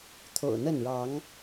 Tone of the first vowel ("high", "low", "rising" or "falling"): low